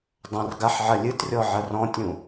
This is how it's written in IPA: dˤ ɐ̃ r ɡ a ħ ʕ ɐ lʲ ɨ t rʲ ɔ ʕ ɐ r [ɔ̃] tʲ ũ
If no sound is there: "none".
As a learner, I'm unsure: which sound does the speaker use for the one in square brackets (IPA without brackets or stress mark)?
ɔ̃